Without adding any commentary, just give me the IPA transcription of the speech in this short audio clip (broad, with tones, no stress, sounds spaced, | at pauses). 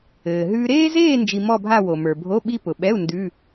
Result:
ɘː˩ ɦ ʉː˧ ɾ eː˥ z eː˥˧ n d͡ʒ i˧ m ɔ˥˧ bʱ a˥˧ w o˩ m ə˞˩ bʱ o˧˥˧ ɓ i˥ p ʊ˩ ɓ ɛ˧˥˧ u̯ n d ʉ˧˥˧